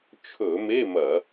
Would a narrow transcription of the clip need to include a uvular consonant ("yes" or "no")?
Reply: no